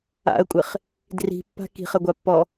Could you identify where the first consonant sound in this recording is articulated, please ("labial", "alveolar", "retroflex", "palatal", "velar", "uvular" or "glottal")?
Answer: velar